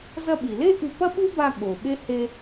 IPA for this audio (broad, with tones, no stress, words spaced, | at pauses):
zɐ˧ɓi˩le˥ ʔʉ˧ pɐ˥ɓu˥ba˧ ɠo˩ɓe˥ he˧